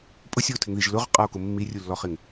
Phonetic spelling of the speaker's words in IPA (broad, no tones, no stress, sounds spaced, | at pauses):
pʼ ʊ sʲ ɔ o̯ tʰ ɪ ŋ ð i ʒ l ʊ ʁ qʼ a o̯ k ʊ mː i rʲ u lː ɔ χ ɪ ŋ